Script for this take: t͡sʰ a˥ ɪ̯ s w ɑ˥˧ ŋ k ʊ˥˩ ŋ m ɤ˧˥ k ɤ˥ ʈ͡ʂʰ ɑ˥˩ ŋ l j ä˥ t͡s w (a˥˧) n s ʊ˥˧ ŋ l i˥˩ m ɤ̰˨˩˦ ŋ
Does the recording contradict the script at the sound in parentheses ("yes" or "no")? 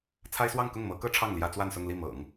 no